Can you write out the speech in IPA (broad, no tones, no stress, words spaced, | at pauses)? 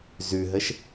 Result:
zʉɦəʃ